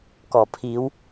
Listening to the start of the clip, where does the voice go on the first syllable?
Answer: low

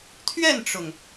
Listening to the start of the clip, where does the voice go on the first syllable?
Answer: falling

